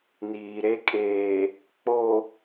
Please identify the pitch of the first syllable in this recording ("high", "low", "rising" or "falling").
low